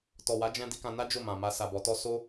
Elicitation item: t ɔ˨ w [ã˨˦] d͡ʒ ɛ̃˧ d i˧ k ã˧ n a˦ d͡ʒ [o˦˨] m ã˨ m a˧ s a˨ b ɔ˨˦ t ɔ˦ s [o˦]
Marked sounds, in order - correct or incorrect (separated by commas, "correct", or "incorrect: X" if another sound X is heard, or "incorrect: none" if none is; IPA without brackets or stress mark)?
incorrect: a˨˦, correct, correct